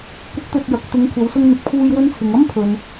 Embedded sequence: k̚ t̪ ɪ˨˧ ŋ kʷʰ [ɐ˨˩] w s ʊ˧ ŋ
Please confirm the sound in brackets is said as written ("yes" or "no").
no